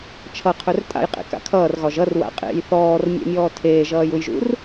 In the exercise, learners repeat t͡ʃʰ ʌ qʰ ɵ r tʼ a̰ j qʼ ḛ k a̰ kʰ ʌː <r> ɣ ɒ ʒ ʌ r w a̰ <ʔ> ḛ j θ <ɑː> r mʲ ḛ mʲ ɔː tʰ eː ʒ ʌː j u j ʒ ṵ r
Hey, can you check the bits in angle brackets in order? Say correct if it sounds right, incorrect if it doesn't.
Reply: correct, incorrect: qʼ, incorrect: ɔː

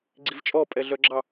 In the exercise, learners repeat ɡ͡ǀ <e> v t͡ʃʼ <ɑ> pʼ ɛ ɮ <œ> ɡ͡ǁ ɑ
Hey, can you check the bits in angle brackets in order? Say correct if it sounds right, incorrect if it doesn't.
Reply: incorrect: i, incorrect: ɔ, correct

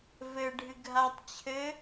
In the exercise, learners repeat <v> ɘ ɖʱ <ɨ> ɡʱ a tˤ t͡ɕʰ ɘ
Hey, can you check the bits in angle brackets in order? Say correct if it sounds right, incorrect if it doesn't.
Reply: correct, correct

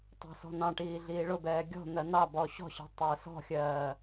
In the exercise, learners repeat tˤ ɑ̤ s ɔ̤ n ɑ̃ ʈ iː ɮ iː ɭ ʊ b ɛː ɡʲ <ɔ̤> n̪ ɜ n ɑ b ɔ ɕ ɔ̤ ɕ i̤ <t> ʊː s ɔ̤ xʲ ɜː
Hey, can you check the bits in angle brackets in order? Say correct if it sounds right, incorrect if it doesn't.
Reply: correct, incorrect: tˤ

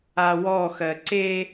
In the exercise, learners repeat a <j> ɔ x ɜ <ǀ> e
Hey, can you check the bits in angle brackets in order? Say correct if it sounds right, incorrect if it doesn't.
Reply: incorrect: w, correct

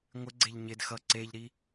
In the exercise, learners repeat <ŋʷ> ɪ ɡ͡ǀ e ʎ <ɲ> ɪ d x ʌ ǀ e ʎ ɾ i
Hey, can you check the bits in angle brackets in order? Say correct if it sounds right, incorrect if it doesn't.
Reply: correct, correct

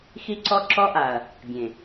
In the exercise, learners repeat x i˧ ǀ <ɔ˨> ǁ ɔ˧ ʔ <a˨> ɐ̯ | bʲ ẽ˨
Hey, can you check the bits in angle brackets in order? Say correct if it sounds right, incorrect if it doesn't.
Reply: incorrect: ɔ˧, correct

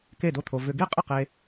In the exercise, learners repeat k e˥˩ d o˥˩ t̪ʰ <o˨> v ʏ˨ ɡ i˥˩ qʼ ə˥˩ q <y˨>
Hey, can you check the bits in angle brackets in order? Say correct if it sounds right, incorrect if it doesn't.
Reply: correct, incorrect: e˨

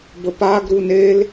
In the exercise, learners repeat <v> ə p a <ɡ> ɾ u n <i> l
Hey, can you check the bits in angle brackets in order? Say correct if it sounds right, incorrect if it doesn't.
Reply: incorrect: b, correct, incorrect: e

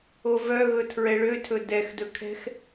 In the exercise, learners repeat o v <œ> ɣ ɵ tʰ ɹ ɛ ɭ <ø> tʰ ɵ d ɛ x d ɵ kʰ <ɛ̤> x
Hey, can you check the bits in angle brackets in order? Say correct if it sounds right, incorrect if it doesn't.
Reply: correct, correct, correct

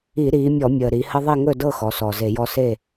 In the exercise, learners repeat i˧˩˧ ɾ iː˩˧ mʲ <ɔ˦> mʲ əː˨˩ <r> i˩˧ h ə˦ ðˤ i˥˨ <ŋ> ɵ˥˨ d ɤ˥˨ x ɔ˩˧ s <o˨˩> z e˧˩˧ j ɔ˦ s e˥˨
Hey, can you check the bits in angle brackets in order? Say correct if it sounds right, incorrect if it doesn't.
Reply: incorrect: ɔ˧˩˧, incorrect: ɾ, correct, incorrect: ɔ˨˩

